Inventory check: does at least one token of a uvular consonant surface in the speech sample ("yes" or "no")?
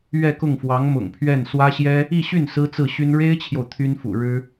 no